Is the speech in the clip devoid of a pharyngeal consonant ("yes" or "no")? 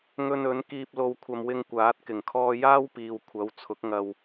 yes